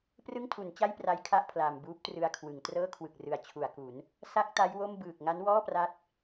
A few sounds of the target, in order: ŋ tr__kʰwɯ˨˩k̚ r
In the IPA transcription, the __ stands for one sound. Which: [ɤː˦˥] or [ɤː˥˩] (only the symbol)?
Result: ɤː˥˩